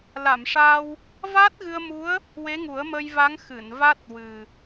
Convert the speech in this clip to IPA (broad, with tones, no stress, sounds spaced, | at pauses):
l a˨˩˨ m ʂ aː˧ w | v aː˦˥ t̚ ɣ ɨ˧ ə̯ m u˧˥ ə̯ | w e˧˥ ŋ u˨˩˦ ə̯ m ə˧ j v a˧˥ ŋ x ɨ˨˩˨ n v a˦˥ t̚ w ɨ˨˩